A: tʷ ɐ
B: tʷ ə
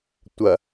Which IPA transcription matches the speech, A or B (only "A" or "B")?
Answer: A